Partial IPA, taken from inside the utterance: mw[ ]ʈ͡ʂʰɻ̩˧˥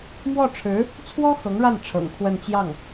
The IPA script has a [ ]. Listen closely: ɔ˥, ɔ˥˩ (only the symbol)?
ɔ˥˩